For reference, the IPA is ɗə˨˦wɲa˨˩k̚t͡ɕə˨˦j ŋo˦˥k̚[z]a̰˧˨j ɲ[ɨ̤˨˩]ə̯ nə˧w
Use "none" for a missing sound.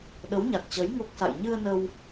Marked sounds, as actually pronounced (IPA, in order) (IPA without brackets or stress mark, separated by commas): s, ɨ˧